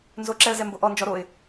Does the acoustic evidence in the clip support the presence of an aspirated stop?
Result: no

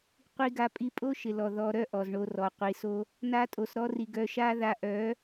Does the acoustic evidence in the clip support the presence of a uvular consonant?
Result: yes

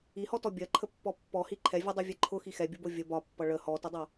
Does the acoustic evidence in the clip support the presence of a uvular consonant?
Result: no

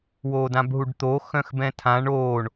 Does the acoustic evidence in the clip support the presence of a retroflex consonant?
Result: yes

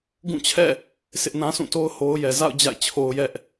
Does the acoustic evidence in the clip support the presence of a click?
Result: no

